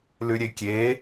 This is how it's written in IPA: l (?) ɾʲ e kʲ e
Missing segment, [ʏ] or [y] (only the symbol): y